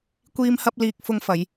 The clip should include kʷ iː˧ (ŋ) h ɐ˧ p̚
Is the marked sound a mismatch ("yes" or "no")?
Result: yes